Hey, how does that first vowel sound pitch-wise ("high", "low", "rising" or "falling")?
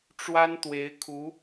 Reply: high